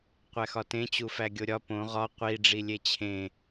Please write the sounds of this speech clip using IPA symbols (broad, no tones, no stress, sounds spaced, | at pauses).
qʷ æ x ɒ t ẽ t͡ɕ u f æ ɡʲ o ɾʲ ɒ p õ ʁ ɒ qʷ i ɖ͡ʐ i lʲ e t͡ɕʰ ẽ